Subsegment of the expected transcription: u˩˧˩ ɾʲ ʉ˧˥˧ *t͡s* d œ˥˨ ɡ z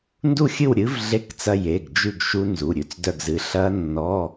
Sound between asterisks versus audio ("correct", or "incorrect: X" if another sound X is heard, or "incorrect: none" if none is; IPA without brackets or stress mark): correct